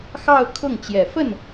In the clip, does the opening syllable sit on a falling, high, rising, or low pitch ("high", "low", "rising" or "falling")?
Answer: falling